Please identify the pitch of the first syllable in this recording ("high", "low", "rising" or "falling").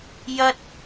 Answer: high